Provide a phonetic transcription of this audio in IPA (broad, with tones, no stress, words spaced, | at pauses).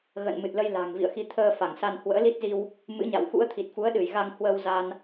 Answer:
ɣə̰ː˧˨nmɨ˨˩t̚lə˧j la̤˨˩ŋ vḭ˧˨ə̯xi˨˦ t̪ʰəː˧fa˧˩ŋsa˧n hwə̰ː˧˥li˦˥t̚zi˧w | mɨ̰˧˥ɲa̰˧˨w xṵ˧˥ə̯t̪ʰi˨˩t̚fu˨˦ə̯ ɗɨ˧˩jɣa˧ŋ hwə˧w za˧n